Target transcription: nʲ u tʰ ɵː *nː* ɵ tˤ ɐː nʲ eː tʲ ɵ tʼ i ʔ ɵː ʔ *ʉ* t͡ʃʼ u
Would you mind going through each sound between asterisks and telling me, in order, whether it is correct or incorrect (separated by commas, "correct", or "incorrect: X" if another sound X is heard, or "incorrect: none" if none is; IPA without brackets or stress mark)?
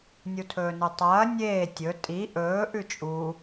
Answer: incorrect: n, correct